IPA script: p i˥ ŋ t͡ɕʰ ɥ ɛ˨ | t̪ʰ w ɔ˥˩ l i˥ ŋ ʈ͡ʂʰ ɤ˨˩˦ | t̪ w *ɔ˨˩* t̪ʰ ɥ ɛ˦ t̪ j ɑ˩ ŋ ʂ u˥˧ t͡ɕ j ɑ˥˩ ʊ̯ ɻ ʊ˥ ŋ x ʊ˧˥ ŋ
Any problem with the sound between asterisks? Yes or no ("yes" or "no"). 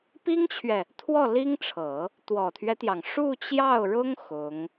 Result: no